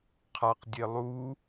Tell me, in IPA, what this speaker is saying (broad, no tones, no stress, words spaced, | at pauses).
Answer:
qʰaqdʲe lˠu